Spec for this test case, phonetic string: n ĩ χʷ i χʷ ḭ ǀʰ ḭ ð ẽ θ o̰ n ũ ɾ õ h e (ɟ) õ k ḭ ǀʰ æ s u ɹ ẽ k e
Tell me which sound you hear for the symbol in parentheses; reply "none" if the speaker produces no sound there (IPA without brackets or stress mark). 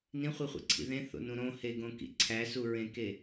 ɡ